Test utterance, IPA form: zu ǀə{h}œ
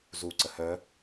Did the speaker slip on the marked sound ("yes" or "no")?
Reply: no